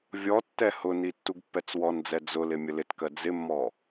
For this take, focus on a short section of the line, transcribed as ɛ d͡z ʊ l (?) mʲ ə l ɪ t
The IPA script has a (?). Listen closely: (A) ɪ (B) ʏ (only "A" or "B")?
A